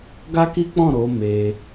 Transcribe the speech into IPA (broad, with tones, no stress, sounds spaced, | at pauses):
ɡ a˦ k i˦ k͡p ɔ̃˦˨ ɾ o˨˦ m e˧